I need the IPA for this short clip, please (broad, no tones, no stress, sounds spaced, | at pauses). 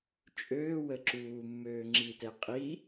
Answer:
t͡ʃʼ øː w ə ǁ uː mː øː ŋ͡ǁ i t ɛ qʼ i